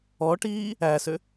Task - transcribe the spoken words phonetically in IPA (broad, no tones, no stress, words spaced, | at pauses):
ɔʈiː | æsø